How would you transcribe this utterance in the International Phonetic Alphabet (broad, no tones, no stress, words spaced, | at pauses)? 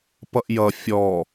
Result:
pʌʔjʌ fʲɔ